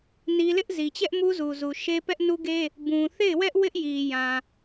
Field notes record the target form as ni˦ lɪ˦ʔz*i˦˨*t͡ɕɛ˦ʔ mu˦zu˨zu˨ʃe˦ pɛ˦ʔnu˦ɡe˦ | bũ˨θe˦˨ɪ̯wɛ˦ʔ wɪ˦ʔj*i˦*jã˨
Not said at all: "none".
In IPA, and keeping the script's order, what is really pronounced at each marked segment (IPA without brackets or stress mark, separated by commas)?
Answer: i˨, i˨